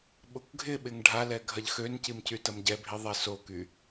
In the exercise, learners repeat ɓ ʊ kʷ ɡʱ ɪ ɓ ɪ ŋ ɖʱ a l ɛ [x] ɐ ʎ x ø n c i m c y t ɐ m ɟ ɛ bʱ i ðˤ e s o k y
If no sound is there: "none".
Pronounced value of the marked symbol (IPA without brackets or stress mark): ɡʱ